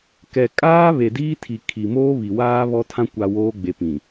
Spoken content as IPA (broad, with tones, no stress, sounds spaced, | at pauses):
k ɛ˨ kʼ aː˦ β e˨ d iː˦ tʰ i˨ kʰ i˨ m oː˦ β i˨ w aː˦ β ɔ˦ tʰ ã˦ kʷ a˨ w oː˦ ɡ͡b e˨ p ĩ˨